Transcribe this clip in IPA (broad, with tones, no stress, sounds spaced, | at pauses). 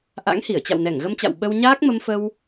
ʔ a̰˧˥ ŋ h i˧˩ ə̯ t͡ɕ a̰˧˨ w n ɛ˧˩ ŋ ɣ ə˧ m t͡ɕ a̰˧˨ w ɓ ə˧ w ɲ aː˦˥ k̚ m ə˧ m f ə˧ w